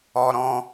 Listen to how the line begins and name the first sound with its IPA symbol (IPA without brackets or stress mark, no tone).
ɔ